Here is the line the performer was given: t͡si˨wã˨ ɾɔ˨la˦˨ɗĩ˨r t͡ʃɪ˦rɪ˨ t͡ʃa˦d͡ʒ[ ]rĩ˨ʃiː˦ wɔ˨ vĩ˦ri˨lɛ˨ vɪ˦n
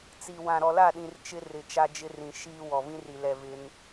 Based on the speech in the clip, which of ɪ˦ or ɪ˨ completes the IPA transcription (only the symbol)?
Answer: ɪ˦